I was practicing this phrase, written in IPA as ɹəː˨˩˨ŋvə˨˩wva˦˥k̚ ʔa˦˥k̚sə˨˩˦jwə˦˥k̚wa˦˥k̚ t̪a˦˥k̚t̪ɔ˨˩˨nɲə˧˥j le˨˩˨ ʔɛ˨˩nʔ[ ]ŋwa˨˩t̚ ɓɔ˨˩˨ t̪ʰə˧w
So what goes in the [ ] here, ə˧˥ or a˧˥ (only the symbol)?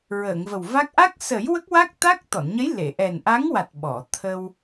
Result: a˧˥